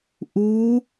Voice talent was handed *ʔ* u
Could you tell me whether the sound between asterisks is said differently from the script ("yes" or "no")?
no